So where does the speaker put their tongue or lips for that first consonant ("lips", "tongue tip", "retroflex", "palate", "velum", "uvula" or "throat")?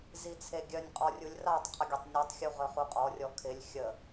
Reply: tongue tip